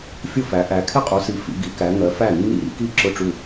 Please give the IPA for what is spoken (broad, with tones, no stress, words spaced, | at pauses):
fʲʊ˥˨fæ˨˦ ʔæ˨˦ kʰɪ˥˨qʼu˨˦si˨˦ fḭ˨˦ɡi˨˦kæ˨˦ ŋɜ˨˦fæ˥˨nːḭ˥˨ ɾḭ˨˦ki˥˨ ǁʊ˥˨ʈ͡ʂu˥˨